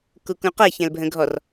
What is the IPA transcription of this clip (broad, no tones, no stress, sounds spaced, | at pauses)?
k u k ũ q ɛ ç ɛ̃ l bʱ ə̃ ɡʱ ɔ r